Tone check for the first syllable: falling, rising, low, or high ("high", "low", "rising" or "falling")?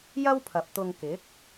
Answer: high